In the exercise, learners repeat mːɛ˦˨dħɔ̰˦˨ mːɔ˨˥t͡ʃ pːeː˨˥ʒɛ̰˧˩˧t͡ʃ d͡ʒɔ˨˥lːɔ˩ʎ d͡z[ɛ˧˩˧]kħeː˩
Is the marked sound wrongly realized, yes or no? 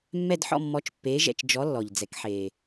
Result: yes